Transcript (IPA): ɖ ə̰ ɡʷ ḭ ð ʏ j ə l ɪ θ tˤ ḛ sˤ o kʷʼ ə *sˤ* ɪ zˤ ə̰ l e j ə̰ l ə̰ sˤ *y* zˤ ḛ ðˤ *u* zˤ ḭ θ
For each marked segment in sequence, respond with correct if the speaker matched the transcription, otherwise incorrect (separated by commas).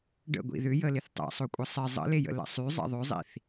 correct, correct, incorrect